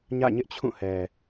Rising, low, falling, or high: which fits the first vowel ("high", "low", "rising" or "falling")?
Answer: falling